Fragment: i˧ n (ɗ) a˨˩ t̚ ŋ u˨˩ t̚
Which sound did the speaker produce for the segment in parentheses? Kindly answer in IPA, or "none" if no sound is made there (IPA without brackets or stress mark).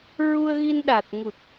ɗ